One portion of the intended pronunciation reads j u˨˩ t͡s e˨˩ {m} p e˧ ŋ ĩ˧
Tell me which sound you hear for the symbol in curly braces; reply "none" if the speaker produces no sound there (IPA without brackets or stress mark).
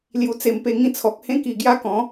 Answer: m